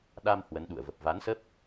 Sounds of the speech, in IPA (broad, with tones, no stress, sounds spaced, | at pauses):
ɗ a˧ m h w ə˨˦ n ɗ ṵ˧˨ ə̯ v ə˨˩ p̚ v a˨˦ n s ə˦˥ p̚